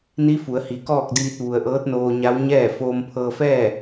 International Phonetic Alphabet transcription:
ni˧˥ fu˩˧ə̯hi˩ kɔː˥˨k̚diː˧t̚ ʋu˩ə̯ʔɤː˧˥t̚noː˧ɲa˧˥w ɲɛː˥˨ foː˧mpʰɤː˧fɛː˥˨

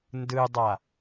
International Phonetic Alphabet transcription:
ndɯdˤa

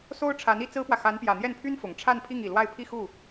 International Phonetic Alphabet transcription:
so˥ʊ̯ ʈ͡ʂʰa˧˥ni˧˥ t͡sɹ̩˥pwä˨ xa˧˥npjä˨˩n̪jɛ˥˩npʰy˥n fʊ˨˩ŋ ʈ͡ʂʰa˥˧npʰi˥˩ŋ i˨˩lwa˥˧ɪ̯ pʰi˥˧xu˥˩

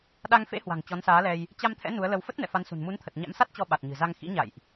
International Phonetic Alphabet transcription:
ɗa˧ŋfḛ˧˥hwa̤˨˩ŋ t͡ɕɔ˨˦nsaː˨˦lɛ˧j | t͡ɕa˧mt̪ʰɛ̰˧˥ nu˨˦ə̯lə˧w fə˦˥t̚nɛ̰˧˨ fa˨˦nsṳ˨˩n mu˨˦nt̪ʰə˨˩t̚ ɲa̰˧˥msa˦˥t̚t͡ɕɔ˧ ɓa˨˩t̚ɲɨ̤˨˩za˧ŋ xḭ˧˥ɲa̰˧˨jʔ

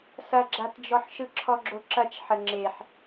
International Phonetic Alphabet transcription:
sɐɡ͡ǁatd͡ʒɔħʃɯ ǁʰɔɡ͡ǁoǁɐt͡ʃ ħəŋ͡ǁeħ

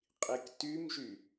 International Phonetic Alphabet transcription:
qʼiktymʒy

